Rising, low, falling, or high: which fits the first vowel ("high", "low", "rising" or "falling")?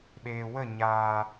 low